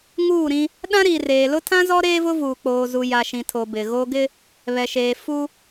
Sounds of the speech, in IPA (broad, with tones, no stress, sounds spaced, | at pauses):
ŋ uː˦˨ ɾ ĩ˦ | ɗ ã˦ ɾ iː˨ r eː˨ l ʊ˦ tʰ ã˦ z ɔ˦ ɾ eː˦ v ʊ˦ v uː˨ k͡p oː˨ z u˨ j a˨ ʃ ĩ˨ tʰ o˨ b ɪ˨ ɣ o˦ ɡ ɪ˦ | β ɛ˨ ʃ eː˨ f u˦